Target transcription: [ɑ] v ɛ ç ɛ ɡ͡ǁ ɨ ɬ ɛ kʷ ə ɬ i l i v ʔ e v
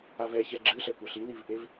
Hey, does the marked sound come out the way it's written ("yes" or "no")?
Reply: no